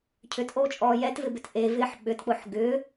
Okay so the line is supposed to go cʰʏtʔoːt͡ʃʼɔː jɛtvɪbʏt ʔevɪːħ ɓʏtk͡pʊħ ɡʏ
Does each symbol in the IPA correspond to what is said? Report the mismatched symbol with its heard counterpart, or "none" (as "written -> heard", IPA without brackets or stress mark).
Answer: none